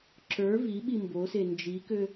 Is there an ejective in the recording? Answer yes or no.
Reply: no